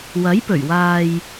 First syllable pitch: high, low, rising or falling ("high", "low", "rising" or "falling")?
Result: rising